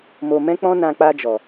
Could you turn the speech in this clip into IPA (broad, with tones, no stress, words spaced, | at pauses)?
mo˧mɛ̃˦k͡pɔ̃˦ nã˧k͡pa˧d͡ʒɔ˨